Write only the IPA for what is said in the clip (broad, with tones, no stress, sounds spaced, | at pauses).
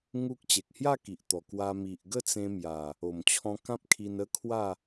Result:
ŋ u˦ k̚ t͡ɕ e˨ k̚ h j a˥˧ k i˨ ʔ t̪ ɔ˨˩ k w a˧ m i˨ ʔ ɡ ə˥˧ t͡s ẽ˧ m j a˨˩ | o˨˩ m t͡ɕʰ ɔ̃˧ k ã˦ p̚ kʰ i˧ n ə˦ kʰ w a˥˧